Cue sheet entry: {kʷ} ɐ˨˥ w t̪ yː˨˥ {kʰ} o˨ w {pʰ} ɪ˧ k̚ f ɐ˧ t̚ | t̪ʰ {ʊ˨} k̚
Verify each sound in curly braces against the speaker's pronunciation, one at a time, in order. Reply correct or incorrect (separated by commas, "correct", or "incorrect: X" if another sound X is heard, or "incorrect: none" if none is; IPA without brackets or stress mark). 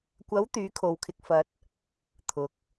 correct, correct, incorrect: kʰ, correct